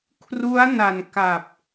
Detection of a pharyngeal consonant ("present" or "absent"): absent